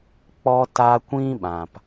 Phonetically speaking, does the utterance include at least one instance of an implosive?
yes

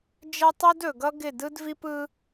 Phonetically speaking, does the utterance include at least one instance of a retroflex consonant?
no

